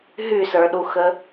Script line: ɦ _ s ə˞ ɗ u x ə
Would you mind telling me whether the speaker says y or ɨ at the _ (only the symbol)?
y